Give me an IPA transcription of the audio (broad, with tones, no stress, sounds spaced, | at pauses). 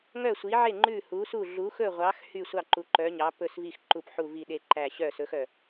ŋ œ˦˨ sʷ i˨˦ ʕ e˦˨ ŋ͡ǃ ʉ˦˨ h u˨˦ s u˦˨ ɮ u˨˦ x ɵ˦˨ ʁʷ ɑ˨˦ x h y˦˨ sʷ ɑ˦˨ ǃ u˨˦ ǃ œ˨˦ ɲ ɑ˨˦ p ɵ˦˨ s v i˦˨ x ǃ u˦˨ p ħ u˦˨ v i˦˨ ɗ e˦˨ ǃ æ˦˨ ɕ œ˦˨ s ɵ˨˦ x œ˦˨